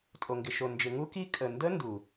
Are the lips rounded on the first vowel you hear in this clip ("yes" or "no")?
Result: yes